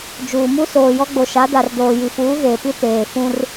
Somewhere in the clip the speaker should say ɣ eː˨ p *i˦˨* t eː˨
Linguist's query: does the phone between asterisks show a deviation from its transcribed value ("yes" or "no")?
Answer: yes